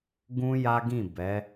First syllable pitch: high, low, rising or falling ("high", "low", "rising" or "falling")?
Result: high